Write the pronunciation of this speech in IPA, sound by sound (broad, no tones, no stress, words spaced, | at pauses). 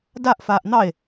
daʔfaːʔ n̪ɑe̯